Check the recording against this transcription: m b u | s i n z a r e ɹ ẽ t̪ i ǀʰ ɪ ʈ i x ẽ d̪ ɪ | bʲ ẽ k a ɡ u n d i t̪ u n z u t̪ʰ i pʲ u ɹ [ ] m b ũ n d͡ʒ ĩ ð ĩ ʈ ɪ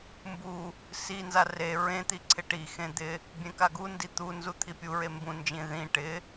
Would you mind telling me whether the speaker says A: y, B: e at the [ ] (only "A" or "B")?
B